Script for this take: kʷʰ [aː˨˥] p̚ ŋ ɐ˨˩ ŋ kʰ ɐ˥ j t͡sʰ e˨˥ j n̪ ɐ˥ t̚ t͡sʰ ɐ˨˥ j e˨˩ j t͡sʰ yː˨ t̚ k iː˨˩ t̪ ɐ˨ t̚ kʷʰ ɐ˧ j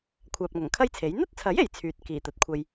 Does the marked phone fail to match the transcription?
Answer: yes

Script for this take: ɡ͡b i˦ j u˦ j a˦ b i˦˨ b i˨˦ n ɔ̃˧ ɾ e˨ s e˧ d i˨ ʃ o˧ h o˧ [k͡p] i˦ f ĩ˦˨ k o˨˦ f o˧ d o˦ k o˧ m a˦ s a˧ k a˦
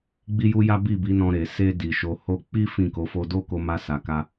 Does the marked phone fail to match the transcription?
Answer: no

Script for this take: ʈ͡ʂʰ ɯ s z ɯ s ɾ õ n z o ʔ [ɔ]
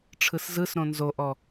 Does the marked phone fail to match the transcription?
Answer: no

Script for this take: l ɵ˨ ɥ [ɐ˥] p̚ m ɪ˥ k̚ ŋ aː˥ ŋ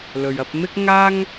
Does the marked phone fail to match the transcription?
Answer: yes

